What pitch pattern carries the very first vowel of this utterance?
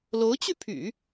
rising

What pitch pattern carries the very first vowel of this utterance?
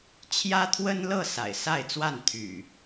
high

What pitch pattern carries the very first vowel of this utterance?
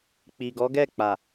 low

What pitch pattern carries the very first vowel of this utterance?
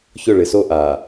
falling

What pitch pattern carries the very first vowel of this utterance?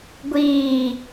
low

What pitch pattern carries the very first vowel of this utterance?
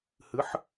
rising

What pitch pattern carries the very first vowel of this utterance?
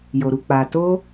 low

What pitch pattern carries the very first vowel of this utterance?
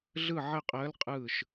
falling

